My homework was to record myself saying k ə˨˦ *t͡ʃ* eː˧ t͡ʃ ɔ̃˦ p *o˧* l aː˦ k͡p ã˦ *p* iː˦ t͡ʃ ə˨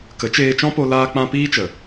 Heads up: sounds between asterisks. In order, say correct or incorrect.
correct, correct, correct

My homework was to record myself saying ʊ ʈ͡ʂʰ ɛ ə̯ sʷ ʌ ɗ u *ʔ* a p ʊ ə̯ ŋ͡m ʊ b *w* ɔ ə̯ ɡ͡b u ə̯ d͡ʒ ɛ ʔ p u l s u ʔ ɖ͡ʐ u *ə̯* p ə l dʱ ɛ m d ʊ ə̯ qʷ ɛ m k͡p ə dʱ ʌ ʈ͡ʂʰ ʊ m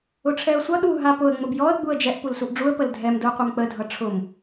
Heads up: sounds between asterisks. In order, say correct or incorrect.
incorrect: ɦ, incorrect: j, correct

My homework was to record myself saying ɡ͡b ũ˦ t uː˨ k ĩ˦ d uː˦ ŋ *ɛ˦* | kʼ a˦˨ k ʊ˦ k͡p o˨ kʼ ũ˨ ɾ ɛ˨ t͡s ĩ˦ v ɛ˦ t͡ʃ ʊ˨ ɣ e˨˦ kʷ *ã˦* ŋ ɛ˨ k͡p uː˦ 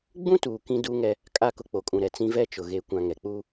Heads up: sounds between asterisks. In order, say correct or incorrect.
correct, incorrect: ã˨

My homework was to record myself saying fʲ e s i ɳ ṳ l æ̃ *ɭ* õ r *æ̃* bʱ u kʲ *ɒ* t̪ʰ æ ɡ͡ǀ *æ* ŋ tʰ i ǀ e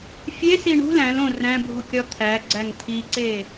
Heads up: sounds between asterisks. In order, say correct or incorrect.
incorrect: l, correct, correct, correct

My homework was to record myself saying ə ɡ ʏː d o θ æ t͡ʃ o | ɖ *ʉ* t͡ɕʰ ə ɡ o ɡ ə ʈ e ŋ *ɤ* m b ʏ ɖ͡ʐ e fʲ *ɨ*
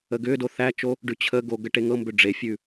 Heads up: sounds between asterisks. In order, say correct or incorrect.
correct, correct, incorrect: ʉ

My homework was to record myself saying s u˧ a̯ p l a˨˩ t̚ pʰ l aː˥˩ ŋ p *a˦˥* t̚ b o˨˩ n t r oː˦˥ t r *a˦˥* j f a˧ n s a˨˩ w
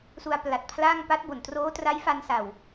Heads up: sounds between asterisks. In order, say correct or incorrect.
correct, correct

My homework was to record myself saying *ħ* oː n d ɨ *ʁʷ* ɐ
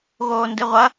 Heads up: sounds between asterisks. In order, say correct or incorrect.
incorrect: ɣ, correct

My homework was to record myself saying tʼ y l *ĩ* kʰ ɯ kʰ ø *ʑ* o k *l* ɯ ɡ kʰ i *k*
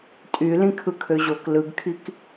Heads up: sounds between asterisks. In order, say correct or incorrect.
correct, correct, correct, correct

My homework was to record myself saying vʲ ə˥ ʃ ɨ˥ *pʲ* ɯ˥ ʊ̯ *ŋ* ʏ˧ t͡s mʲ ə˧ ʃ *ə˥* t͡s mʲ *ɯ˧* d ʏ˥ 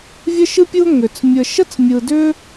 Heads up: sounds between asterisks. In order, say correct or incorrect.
correct, correct, correct, correct

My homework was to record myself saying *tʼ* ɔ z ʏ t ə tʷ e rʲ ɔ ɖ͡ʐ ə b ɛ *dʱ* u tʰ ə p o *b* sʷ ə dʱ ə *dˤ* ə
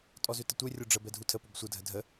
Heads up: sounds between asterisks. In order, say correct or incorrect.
correct, correct, correct, incorrect: dʱ

